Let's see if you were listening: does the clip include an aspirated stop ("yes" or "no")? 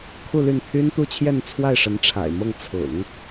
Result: yes